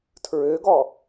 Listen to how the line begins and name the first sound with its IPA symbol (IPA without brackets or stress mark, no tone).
tʰ